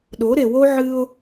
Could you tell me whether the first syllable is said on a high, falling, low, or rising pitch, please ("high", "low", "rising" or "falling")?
rising